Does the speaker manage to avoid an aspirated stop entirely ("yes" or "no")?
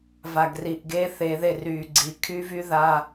no